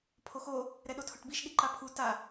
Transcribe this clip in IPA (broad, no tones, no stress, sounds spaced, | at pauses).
pʰ o x o | ɾ ɛ ɗ o tʰ ʊ ʈ b i ʃ ɗ i ǃ a pʰ u t a